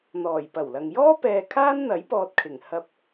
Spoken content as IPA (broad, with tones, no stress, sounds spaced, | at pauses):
n̪ ɔː˨˩ j p ɐ˨˩ w l ɐ˨ ŋ j ɔː˥ p ɛː˧ kʰ aː˥ n n̪ ɐ˨˥ j p ɔː˧ t̚ kʰ ɪ˨˩ ŋ h ɐ˧ p̚